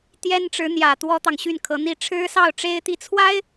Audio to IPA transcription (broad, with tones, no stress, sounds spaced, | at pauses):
t̪ j ɛ˥ n ʈ͡ʂ ɻ̩˧˥ n̪ j ä˨˩ t̪ w ɔ˥ t̪ ɑ˨ ŋ ɕ y˥˩ n kʰ ɤ˧˥ n̪ i˥˩ ʈ͡ʂʰ ɻ̩˥ s ɑ˥˩ ʊ̯ ʈ͡ʂ e˥ ɪ̯ t̪ i˥˩ t͡sʰ w a˥ ɪ̯